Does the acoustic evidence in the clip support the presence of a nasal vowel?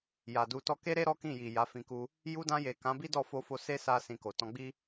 yes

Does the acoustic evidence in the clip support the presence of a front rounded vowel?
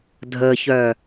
yes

